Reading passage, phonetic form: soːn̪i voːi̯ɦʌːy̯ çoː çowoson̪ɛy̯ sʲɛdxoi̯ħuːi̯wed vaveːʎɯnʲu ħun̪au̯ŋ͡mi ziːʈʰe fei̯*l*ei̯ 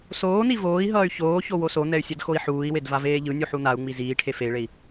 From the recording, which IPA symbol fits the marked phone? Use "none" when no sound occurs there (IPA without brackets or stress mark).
ɭ